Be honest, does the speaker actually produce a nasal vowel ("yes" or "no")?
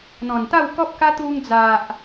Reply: yes